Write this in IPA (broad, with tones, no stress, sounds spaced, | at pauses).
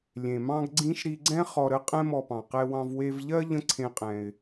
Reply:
lʲ ẽ˩ m ɑ̃˧ ɡ ɡ͡ǀ ĩ˧ ʃ ɾ i˧ ɡ͡ǀ ɛ̃˥ χ ɔ˧ ɾ ə˥ qʼ ɛ̃˥ m ɔ˧ p ɑ̃˩ q ɛ˧ w ɑ̃˧ v w e˧ v ʎ ɜ˥ ʎ ə̃˥ ǀʰ ẽ˧ qʼ ɛ̃˩ ɪ̯